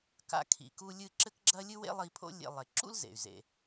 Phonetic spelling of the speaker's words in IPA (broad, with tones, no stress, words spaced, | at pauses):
ka̰˧ kʰḭ˩ku˧lʲɨ˧ ǁɘ˥kɡ͡ǁɐ˥ lʲɨ˥wḛ˥lˠi˧pʰo̰˥ lʲḛ˧ lˠe˩ǁṵ˥l zḛ˩y̯zḛ˩